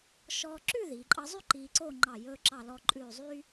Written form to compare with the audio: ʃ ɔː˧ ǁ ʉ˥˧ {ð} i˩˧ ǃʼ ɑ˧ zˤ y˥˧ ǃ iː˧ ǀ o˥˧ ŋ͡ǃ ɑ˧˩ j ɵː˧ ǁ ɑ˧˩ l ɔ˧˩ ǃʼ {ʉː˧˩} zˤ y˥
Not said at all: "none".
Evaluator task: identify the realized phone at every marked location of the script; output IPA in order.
ð, ʉː˧˩

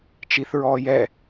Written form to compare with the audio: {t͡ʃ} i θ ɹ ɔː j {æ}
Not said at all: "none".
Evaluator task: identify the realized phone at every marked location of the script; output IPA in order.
t͡ʃ, ɛ

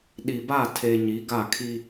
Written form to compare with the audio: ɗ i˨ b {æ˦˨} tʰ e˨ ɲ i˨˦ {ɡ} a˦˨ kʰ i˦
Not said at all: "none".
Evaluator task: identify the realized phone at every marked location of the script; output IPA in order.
a˦˨, ɡ

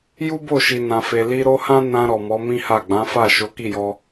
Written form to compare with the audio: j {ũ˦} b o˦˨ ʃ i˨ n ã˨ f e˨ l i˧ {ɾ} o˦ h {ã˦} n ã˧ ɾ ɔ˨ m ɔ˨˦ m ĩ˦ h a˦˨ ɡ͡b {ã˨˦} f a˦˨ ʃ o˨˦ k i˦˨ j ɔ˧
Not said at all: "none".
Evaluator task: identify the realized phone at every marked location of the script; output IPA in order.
u˦, ɾ, ã˦, ã˨˦

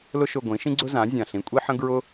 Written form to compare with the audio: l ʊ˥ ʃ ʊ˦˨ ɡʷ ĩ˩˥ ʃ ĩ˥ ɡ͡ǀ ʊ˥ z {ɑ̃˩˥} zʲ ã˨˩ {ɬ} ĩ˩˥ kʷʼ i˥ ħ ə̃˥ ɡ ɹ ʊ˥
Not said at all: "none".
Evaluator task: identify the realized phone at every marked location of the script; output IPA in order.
ã˩˥, ɬ

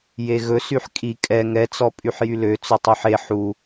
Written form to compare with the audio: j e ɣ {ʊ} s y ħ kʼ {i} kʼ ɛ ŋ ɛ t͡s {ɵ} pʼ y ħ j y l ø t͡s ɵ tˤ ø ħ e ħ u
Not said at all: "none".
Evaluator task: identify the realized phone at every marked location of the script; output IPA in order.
ɵ, i, ɔ

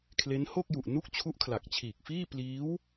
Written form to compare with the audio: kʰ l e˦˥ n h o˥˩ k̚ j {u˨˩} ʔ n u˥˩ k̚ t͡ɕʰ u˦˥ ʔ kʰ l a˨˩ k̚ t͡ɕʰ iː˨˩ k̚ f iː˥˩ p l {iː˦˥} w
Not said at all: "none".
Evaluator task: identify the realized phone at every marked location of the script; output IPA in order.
u˨˩, iː˦˥

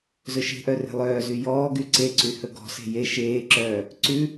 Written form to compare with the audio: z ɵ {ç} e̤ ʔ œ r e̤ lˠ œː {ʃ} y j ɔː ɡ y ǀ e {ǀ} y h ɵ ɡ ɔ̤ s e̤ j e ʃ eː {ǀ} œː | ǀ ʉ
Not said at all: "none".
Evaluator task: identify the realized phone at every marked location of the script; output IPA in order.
ʃ, z, ǀ, ǁ

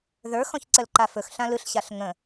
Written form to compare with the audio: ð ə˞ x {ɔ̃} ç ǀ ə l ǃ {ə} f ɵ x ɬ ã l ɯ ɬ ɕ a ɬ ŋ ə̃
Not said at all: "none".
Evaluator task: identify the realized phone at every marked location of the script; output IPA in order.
ɔ̃, a

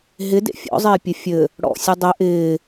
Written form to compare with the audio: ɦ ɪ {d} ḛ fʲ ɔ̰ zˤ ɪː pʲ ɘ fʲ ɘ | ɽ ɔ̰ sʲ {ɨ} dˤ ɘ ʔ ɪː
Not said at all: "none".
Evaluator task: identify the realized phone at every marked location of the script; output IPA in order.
d, ɨ

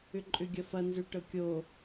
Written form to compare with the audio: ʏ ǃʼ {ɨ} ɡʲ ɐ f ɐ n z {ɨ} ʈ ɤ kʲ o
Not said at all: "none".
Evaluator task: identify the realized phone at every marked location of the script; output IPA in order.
ʏ, ʏ

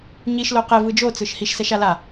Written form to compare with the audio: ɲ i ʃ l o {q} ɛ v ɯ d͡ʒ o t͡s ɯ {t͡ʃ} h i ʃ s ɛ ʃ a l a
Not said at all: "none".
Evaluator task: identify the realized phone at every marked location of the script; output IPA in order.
q, ʃ

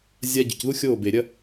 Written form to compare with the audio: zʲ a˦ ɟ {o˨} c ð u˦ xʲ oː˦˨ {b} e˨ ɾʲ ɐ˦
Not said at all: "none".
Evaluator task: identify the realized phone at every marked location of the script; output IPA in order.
ɵ˨, b

